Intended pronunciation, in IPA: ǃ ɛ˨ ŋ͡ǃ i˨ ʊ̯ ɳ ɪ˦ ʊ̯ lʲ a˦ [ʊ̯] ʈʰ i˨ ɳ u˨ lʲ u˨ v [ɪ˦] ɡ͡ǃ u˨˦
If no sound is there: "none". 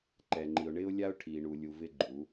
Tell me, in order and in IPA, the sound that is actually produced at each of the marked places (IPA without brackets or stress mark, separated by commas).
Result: ʊ̯, ɪ˦